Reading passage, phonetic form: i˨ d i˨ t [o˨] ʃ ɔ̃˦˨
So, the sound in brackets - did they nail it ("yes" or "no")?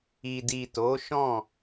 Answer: no